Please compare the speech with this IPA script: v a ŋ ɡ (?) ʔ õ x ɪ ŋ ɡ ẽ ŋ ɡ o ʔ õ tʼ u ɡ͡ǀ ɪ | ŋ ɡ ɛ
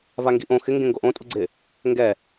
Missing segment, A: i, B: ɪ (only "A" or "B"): A